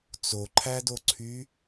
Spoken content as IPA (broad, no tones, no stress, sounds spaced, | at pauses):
t͡s o ǃʰ æ d o ǀʰ y